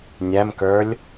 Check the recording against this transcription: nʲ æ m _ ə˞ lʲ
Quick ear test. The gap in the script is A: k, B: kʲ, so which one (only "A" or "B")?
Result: A